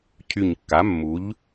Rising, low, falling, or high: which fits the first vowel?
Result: low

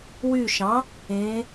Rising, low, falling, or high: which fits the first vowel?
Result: low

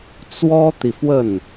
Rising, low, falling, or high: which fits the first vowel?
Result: high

